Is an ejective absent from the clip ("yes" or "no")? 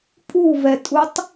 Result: no